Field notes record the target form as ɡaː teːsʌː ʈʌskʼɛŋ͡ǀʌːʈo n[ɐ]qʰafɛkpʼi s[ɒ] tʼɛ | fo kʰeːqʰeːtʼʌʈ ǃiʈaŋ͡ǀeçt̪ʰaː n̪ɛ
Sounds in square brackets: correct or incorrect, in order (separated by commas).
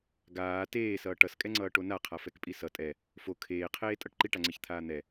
incorrect, incorrect